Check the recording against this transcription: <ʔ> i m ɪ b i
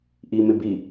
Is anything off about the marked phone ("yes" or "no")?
no